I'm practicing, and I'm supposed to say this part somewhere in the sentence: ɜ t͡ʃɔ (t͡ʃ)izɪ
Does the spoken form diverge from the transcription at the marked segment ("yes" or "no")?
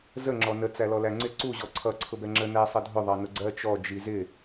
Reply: yes